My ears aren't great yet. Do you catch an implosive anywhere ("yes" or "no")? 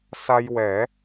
no